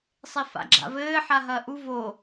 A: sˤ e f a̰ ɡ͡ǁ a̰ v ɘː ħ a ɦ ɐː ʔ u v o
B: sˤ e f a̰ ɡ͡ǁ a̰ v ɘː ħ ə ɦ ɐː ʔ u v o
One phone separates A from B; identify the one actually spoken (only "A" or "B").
A